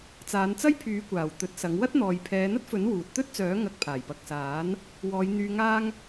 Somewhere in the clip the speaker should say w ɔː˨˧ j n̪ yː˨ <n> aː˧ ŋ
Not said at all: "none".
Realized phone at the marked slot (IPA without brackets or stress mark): ŋ